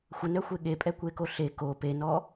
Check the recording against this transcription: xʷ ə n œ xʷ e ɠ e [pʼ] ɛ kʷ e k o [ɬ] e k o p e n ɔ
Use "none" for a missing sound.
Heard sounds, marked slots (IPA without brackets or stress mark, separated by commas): pʼ, ɬ